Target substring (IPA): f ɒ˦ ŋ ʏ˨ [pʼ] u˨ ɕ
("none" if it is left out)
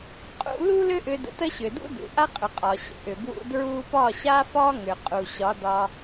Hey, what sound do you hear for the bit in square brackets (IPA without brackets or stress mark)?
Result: qʼ